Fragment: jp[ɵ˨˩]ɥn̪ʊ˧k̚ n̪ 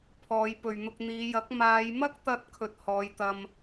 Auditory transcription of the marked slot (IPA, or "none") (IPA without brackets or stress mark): ɵ˨